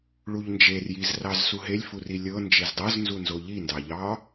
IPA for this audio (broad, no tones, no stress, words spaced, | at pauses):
ɭuʎnd͡ʒerjiz rɑzsuɦelʲfu rilʲɤ nd͡ʒezdˤɤznzunzo ʎindɑʎɑ